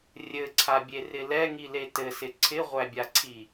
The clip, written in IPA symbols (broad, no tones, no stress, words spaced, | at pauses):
rʲɘǀʰabʲerɪ lɛŋile tɘsɪ ǀʰɪʁʷæbʲaǀʰi